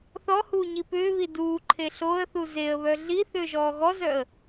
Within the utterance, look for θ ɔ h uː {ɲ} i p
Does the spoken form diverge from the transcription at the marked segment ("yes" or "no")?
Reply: no